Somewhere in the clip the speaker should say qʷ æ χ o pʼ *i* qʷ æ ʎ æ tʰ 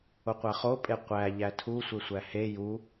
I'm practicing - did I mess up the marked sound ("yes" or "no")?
yes